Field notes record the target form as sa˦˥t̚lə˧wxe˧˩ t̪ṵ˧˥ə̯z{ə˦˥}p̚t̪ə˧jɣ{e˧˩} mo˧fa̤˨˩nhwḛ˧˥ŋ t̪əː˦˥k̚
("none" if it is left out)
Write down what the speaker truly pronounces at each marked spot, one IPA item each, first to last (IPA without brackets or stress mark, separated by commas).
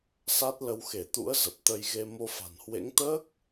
ə˨˩, e˧